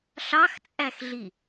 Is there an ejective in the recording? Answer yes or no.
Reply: yes